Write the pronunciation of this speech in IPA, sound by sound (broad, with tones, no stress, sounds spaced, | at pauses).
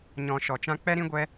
ɲ ɔ̃˧ ʃ ɔ˧ t͡ʃ ã˦ k͡p ɛ˦ ɾ ĩ˦ ɡʷ ɛ˦